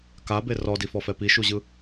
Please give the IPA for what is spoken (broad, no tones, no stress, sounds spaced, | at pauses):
k a b e r ɔ d i f ɔ f ɛ p i ʃ u ʑ ɯ